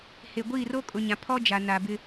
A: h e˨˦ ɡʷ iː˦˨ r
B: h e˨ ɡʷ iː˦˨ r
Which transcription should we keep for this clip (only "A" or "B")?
B